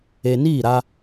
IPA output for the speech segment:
e˨niː˦˨ɾa˦

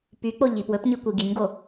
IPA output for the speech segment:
pyk͡po ʎipwɵpɲi kʷiɡiɲɡo

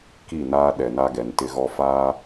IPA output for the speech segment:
ki˦˨ naː˦ɗɛ˨na˦ɡɛ˨n tɪ˦ɣɔ˦ faː˦

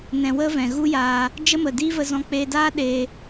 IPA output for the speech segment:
nɛ̃˧wə˦vɛ̃˨ ɣu˦jaː˧ | d͡ʒə˦mə˨diː˦və˧ zɔ̃˧k͡peː˧daː˦ ɗeː˧

